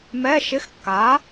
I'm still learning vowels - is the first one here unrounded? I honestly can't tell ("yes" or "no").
yes